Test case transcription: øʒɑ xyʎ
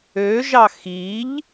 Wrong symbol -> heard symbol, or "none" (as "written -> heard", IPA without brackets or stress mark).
y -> i